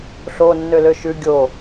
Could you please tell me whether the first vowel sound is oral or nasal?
oral